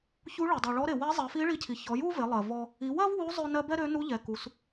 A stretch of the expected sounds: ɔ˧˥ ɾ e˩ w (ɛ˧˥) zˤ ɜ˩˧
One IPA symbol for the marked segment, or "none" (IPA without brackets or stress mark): ɛ˧˥